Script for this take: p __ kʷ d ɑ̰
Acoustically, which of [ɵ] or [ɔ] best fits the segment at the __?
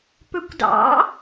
ɵ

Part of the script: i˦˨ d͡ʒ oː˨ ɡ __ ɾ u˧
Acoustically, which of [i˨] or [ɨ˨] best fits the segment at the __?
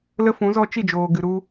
ɨ˨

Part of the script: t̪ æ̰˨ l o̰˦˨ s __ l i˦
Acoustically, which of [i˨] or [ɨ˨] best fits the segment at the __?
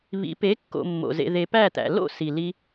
i˨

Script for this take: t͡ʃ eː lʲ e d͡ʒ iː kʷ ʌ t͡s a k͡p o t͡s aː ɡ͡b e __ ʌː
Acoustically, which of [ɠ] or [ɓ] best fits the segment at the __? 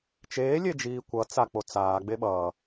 ɓ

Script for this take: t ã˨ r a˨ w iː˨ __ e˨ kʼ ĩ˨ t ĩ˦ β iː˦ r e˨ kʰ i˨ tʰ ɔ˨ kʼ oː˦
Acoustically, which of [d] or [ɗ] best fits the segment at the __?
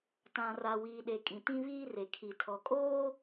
ɗ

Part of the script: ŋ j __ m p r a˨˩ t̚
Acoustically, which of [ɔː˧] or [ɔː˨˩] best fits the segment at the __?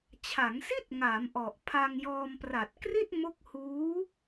ɔː˧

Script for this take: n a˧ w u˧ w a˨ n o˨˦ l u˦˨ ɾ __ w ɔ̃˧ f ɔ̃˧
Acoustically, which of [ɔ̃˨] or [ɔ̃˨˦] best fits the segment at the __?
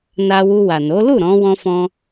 ɔ̃˨˦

